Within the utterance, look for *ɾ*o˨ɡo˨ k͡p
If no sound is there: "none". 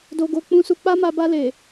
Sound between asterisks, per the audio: d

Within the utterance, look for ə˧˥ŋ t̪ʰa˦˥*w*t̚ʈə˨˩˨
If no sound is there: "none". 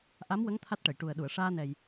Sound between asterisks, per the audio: none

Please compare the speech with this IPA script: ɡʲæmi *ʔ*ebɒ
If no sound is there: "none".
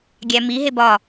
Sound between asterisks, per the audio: ɦ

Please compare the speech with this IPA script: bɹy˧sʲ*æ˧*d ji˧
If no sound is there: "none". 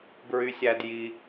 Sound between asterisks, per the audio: æ˧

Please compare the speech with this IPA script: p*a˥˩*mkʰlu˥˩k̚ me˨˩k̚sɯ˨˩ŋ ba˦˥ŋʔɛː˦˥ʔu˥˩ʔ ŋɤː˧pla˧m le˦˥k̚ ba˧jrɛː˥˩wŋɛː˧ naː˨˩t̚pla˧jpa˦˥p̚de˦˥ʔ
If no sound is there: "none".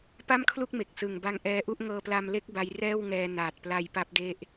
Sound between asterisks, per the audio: a˥˩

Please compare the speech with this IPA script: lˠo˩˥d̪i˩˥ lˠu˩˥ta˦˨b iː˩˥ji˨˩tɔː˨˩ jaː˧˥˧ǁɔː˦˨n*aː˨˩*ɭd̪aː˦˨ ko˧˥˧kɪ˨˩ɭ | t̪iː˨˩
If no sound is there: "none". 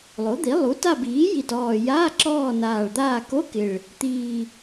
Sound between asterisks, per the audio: aː˨˩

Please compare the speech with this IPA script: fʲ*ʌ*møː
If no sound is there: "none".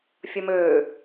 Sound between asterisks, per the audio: ʌ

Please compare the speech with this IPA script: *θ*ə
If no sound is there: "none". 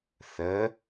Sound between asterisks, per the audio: θ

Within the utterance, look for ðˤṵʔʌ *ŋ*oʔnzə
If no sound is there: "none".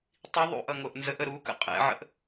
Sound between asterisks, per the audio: ŋ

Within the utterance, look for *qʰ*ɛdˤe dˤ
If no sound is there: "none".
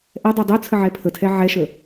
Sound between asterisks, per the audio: ʔ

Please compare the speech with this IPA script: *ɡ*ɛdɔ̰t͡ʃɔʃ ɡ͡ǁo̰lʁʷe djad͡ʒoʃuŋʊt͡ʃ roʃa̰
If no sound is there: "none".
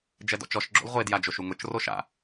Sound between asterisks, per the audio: d͡ʒ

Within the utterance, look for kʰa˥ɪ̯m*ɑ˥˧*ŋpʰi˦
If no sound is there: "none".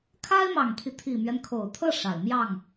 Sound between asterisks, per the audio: ɑ˨˩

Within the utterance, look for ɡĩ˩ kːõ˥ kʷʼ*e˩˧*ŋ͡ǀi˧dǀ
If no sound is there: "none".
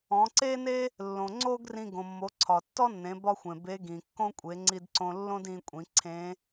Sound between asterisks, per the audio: e˩˧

